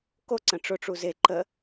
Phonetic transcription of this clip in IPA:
k o ǀ ə̃ ʈ͡ʂ ʊ ʈ͡ʂ u z e ǃ ə

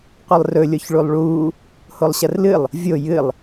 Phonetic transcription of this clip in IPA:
qʷ ɨ lˠ r ɵ lʲ o ç ɭ u lˠ ɭ uː | h o lˠ ɕ ɐ r l ɨ lˠ | vʲ o j ɨ lˠ

